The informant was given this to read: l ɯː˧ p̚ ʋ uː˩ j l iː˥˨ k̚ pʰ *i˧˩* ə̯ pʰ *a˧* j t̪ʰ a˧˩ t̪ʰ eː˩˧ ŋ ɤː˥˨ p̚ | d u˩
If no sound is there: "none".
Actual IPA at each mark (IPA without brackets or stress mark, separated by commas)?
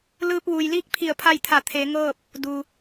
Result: i˧˩, a˥˨